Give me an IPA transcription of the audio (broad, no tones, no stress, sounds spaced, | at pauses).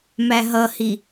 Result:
m æ ɦ ʌ h i